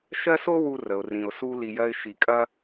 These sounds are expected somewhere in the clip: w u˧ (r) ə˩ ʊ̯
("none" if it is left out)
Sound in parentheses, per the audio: r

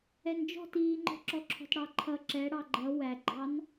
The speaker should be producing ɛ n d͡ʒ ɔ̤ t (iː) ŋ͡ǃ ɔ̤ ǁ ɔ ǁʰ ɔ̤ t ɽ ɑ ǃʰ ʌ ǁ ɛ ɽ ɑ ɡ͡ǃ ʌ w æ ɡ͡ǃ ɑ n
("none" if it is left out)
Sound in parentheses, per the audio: iː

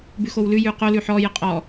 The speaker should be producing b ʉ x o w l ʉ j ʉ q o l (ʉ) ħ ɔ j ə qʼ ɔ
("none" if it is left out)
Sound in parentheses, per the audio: ʉ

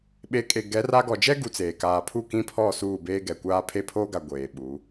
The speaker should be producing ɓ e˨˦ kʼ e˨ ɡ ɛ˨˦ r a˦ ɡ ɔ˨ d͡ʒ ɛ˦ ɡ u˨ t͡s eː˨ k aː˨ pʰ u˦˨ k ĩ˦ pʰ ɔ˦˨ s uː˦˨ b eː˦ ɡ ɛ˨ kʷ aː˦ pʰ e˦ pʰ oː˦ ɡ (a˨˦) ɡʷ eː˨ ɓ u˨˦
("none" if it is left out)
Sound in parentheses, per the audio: a˨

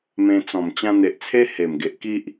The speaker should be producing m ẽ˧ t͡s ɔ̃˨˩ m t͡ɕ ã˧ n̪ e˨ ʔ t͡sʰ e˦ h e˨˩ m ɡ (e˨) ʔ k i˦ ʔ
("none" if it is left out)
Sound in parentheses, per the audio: e˨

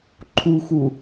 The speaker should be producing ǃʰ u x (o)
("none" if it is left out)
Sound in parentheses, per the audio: u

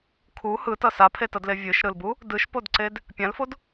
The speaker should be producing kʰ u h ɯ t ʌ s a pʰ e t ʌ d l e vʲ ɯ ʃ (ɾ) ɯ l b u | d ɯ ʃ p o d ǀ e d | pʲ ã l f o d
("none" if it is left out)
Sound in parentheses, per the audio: ɾ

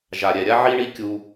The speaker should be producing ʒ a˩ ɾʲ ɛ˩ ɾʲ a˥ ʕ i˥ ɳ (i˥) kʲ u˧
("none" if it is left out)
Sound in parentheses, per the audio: i˥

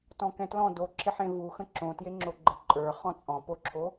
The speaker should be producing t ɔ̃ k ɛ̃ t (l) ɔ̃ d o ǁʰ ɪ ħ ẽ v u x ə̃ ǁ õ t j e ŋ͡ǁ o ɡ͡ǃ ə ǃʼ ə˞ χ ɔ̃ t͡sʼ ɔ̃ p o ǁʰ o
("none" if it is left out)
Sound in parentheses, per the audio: l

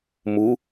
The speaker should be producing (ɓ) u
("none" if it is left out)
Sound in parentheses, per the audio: m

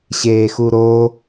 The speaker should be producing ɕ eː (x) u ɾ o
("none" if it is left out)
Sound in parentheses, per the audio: x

